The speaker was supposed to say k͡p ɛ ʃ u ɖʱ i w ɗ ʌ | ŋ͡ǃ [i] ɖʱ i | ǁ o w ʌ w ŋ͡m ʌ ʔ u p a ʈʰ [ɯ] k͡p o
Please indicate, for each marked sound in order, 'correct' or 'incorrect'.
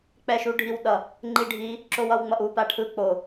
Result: correct, correct

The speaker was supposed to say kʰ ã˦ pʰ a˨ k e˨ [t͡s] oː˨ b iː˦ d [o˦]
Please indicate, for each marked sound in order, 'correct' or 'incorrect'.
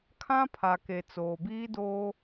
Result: correct, incorrect

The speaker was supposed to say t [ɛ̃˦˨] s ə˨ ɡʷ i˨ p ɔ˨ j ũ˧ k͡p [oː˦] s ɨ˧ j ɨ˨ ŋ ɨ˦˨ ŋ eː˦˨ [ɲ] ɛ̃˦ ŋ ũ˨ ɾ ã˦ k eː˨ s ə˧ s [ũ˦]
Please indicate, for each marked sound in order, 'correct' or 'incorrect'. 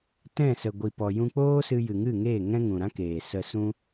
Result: correct, correct, incorrect, correct

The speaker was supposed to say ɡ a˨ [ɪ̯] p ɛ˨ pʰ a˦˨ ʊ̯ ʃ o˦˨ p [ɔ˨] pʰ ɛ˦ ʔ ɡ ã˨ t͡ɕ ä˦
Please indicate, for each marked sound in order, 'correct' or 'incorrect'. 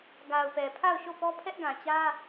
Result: incorrect, incorrect

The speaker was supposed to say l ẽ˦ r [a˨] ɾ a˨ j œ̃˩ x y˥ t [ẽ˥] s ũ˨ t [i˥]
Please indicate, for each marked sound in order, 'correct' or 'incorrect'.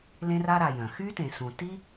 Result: incorrect, incorrect, correct

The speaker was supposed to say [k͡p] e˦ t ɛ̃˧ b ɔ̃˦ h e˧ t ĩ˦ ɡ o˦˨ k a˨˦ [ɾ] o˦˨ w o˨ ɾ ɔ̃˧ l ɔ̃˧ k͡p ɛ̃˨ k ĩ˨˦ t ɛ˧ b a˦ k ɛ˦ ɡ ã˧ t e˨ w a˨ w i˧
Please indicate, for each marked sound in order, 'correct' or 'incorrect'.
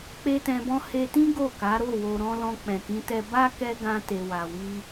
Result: correct, correct

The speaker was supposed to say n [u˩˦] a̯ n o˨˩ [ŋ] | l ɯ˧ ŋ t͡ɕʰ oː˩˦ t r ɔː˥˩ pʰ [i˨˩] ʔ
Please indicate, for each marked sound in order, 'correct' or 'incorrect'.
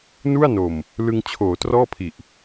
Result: incorrect, incorrect, correct

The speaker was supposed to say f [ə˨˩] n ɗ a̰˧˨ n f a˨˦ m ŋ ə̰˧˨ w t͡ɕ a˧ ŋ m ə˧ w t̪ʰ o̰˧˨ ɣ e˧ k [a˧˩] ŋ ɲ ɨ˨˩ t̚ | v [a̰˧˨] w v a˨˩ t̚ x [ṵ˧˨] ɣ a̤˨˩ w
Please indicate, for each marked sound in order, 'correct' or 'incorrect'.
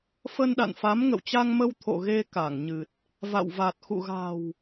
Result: incorrect, correct, correct, correct

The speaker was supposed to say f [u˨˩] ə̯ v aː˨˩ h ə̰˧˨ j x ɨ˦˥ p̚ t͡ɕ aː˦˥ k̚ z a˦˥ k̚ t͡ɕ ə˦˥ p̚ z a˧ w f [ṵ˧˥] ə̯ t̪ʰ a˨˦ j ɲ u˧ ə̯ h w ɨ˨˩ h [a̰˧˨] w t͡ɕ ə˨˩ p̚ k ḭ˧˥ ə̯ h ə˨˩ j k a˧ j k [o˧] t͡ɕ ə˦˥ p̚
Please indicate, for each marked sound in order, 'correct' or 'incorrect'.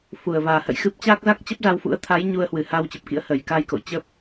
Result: correct, correct, incorrect, incorrect

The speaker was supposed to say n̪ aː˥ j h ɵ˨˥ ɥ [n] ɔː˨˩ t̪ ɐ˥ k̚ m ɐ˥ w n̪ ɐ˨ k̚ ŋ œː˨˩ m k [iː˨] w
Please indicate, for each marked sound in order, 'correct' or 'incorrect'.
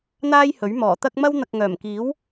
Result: incorrect, incorrect

